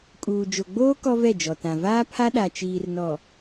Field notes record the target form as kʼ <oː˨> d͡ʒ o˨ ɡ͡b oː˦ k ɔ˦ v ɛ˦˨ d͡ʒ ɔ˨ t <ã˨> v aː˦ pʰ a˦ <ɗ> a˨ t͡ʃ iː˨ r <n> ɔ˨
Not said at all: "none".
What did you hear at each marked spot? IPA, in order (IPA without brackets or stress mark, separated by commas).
uː˨, ã˨, ɗ, n